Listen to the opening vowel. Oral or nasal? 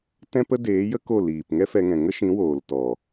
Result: nasal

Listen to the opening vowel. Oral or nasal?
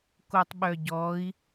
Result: oral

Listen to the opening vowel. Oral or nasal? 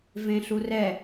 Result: nasal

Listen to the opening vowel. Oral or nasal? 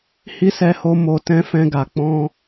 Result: oral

